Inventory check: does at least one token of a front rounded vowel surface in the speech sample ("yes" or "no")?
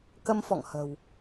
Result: no